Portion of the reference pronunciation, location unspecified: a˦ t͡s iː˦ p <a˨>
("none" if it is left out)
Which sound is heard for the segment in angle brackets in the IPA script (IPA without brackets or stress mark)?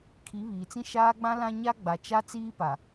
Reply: a˨